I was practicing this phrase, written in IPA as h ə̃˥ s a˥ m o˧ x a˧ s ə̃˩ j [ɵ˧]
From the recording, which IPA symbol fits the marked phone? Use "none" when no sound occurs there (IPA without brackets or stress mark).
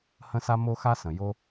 o˧